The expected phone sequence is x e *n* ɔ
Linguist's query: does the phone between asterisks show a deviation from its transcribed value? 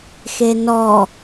no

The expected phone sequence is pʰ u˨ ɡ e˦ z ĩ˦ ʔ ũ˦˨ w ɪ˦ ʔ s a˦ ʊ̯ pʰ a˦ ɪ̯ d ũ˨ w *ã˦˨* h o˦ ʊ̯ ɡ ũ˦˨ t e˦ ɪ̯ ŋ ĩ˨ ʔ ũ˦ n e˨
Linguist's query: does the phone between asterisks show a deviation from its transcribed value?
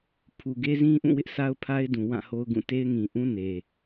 no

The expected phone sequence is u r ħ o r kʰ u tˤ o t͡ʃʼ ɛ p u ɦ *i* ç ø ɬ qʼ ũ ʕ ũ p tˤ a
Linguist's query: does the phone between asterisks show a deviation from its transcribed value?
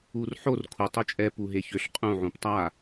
yes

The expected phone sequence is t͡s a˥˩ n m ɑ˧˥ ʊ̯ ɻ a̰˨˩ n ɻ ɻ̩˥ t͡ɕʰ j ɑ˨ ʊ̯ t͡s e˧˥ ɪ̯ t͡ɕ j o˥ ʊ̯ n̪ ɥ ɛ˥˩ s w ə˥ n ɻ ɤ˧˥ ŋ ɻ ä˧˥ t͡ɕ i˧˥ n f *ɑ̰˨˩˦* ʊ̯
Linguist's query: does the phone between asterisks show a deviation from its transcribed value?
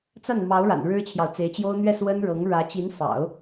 no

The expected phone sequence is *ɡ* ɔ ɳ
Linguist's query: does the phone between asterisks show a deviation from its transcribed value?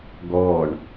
no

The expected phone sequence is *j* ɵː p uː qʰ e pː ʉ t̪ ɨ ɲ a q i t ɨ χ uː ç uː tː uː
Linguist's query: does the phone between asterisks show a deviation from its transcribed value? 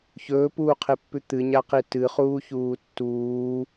yes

